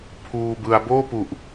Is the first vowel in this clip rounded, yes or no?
yes